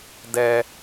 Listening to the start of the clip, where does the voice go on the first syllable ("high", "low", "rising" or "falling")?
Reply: low